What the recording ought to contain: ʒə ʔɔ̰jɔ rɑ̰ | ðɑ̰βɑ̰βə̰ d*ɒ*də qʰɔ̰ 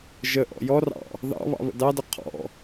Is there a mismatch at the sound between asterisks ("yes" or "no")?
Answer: yes